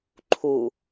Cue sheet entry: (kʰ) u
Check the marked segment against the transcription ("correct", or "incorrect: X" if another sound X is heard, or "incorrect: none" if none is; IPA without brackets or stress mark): incorrect: ǃʰ